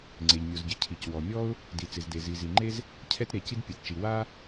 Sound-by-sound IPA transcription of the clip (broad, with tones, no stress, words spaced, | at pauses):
ŋ͡ǀe˩ʎmʲo˩zɟɪ˩ cʰi˩cwɔ˩mʲɔ˥ʊ̯ | di˩t͡sɪ˩zde˩ zi˩zi˩ŋ͡ǃe˥z | cʰɛ˥tɾe˩ci˥d pʲɛ˩tt͡ʃi˩ wa˥